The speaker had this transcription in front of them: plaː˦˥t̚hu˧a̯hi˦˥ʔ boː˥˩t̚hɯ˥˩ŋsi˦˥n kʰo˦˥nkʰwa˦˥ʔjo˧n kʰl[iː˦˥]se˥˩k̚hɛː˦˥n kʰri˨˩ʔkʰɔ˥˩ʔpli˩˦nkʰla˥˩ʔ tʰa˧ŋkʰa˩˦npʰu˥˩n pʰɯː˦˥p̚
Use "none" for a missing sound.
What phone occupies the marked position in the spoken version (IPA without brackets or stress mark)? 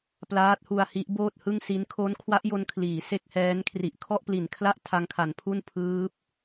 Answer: iː˩˦